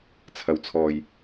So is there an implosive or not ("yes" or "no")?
no